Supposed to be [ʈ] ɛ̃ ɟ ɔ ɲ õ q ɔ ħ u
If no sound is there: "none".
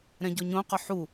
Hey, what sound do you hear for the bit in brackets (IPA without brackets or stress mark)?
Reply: ɾ